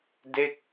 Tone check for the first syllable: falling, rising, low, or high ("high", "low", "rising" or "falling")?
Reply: falling